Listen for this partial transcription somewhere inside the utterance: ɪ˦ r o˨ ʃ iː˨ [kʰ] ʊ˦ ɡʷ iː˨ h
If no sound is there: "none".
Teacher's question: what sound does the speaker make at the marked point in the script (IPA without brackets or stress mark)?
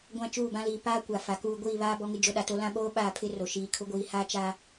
kʰ